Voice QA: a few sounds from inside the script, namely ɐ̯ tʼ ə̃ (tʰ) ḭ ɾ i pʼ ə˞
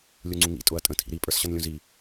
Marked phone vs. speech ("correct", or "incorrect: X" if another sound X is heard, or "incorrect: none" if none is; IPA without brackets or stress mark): correct